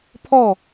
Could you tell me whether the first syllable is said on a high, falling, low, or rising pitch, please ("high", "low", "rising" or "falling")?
falling